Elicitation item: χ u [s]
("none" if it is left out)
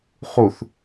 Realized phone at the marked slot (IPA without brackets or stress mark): θ